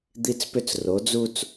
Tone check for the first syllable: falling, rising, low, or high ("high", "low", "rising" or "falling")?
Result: high